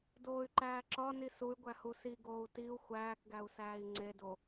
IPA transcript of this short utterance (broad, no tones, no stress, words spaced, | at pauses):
doːy̯ǃæːǁɒni suy̯ɡʷæ husiɡoːu̯ tiu̯ xʷæːkɡæu̯ sæːi̯ŋ͡ǀedo